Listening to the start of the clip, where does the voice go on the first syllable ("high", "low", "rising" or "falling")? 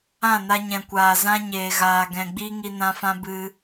falling